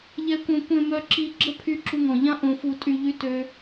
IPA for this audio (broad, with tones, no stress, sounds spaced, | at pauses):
ʎ ɛ˧ kʷ œ̃˧ kʷ ẽ˧ m œ˧ ǁ i˧ ɡ͡ǁ ə˦ pʰ y˧ ǁ u˧ ŋ ɔ̃˨ ʎ ã˦ ʔ õ˧ f u˧ tʼ y˧ ʎ y˦ t ø˦